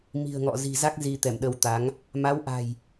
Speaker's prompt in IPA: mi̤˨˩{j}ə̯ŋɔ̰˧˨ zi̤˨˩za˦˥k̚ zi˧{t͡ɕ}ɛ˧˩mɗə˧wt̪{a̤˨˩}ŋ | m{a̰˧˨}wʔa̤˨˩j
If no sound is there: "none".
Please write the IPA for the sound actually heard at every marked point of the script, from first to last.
none, t̪, a˨˦, a˨˦

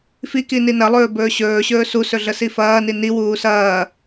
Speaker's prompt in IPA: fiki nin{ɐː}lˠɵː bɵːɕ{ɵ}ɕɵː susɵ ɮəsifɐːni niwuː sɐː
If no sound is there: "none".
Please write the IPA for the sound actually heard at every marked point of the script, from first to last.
ɐ, ɵː

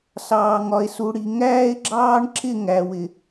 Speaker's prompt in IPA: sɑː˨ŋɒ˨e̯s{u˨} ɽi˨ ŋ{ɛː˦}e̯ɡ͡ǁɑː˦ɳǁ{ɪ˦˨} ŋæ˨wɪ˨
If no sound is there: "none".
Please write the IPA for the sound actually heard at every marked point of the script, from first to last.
u˨, æː˦, ɪ˦˨

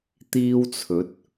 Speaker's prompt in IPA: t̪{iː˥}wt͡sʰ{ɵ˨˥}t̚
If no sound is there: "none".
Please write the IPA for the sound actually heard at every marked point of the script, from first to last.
iː˥, ɵ˨˥

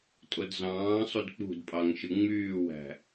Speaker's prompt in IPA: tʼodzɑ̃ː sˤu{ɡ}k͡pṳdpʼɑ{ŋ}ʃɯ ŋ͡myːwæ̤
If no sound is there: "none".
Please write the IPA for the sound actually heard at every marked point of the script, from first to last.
d, ŋ

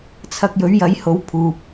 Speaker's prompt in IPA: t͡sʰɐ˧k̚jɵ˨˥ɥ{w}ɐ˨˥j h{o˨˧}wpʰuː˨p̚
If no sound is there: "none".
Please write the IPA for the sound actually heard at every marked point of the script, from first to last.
j, o˨˥

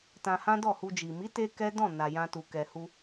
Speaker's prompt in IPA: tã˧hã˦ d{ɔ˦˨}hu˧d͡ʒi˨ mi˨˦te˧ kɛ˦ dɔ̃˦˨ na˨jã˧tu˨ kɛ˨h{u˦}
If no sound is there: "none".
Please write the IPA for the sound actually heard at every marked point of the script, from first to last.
ɔ˦˨, u˧

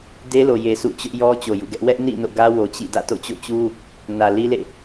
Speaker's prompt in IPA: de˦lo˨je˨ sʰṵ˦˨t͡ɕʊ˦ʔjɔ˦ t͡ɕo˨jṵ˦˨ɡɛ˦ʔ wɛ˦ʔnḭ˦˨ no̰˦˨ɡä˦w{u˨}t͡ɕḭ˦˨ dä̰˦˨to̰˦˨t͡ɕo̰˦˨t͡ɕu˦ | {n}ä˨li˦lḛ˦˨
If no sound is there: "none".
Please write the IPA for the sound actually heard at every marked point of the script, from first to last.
o˨, n

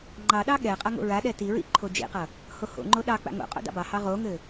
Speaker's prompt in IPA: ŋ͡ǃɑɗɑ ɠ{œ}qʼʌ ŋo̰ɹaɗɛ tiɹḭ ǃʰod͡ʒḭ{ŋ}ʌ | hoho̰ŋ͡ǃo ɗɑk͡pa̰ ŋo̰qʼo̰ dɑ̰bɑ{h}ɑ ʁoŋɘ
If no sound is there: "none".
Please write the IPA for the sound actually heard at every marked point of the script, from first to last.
ɛ, q, h

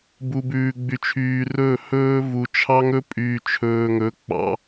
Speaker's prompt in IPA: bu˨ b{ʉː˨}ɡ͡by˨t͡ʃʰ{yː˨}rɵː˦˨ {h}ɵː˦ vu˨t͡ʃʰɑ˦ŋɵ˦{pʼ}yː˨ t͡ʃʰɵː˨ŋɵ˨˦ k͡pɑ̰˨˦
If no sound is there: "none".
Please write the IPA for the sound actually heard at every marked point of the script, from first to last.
ʉː˨, yː˨, h, pʼ

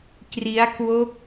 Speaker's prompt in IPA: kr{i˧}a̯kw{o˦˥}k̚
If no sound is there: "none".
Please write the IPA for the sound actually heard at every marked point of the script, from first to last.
i˦˥, o˦˥

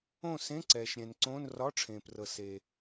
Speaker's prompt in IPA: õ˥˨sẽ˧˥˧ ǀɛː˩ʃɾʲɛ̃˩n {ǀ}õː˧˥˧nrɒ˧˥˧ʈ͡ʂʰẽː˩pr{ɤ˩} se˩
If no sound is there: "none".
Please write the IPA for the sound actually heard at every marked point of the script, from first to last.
ǀ, ɤ˩

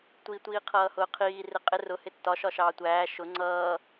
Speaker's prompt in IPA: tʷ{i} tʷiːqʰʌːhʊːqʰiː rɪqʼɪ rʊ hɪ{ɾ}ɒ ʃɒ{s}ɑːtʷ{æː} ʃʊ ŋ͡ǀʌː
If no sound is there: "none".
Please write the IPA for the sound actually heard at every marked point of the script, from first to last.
i, tː, ʃ, æː

